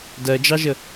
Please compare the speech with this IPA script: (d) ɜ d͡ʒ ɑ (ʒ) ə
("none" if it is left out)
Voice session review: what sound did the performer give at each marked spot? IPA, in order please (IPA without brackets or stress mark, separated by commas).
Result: d, ʒ